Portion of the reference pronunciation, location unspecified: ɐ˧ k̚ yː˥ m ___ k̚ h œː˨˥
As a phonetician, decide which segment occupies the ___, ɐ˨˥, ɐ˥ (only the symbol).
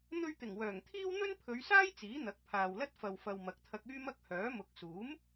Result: ɐ˥